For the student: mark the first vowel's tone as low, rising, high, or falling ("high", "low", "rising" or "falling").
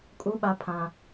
high